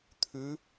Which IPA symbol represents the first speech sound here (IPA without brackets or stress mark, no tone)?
t̪ʰ